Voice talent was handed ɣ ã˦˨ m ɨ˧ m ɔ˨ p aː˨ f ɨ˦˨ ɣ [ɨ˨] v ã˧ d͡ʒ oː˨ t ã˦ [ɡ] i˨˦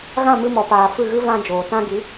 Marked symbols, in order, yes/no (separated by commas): no, yes